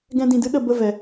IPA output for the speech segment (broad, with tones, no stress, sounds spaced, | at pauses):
ɡ ɛ̃˧ d ĩ˨ d ɨ˦ ɗ ə˨ b ə˦˨ v ɛ˨